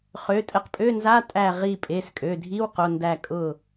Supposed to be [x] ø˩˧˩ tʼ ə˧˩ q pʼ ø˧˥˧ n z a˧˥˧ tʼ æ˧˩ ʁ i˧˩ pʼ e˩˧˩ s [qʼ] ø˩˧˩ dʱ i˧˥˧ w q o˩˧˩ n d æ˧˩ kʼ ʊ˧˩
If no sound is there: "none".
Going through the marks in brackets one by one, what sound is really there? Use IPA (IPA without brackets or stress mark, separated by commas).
χ, kʼ